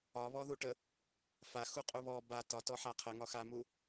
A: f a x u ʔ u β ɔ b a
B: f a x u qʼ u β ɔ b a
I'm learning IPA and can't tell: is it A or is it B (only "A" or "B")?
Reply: B